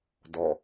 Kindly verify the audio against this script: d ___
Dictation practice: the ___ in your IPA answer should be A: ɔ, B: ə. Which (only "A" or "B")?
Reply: A